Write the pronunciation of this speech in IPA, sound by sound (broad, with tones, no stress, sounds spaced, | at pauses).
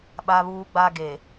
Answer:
ɓ a˦ β uː˦ ɡ͡b a˦ ɡ e˨